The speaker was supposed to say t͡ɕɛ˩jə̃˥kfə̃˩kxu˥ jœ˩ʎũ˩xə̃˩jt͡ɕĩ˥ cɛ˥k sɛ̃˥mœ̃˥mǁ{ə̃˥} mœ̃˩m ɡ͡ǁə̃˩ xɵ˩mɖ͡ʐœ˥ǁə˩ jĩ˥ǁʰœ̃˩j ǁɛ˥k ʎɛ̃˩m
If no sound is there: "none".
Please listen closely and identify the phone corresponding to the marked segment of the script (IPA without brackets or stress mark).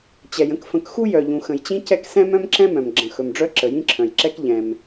ɛ̃˥